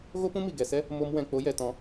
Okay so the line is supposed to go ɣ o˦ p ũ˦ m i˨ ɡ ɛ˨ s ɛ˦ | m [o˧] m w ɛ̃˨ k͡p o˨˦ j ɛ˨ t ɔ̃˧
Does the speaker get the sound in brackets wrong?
no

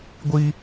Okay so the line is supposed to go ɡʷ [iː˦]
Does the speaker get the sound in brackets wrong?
yes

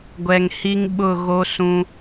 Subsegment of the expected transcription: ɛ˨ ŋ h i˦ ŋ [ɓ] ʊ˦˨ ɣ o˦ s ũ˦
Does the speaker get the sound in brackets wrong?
no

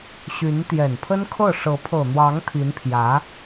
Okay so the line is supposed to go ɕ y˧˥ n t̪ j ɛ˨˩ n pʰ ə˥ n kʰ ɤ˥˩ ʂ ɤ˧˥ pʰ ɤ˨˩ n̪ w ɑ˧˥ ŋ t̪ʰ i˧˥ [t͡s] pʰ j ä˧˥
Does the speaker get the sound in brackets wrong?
yes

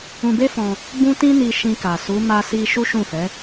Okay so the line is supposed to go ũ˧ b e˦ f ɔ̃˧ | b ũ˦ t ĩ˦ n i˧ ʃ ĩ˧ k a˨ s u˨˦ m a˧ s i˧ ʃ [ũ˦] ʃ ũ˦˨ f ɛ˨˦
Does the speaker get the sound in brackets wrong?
yes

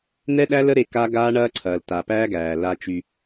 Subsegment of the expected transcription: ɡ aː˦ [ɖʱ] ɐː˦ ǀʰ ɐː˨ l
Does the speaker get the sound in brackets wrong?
yes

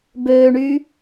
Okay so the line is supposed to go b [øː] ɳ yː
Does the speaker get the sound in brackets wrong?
no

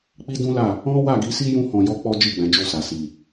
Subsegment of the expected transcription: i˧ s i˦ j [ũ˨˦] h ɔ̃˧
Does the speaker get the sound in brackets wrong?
yes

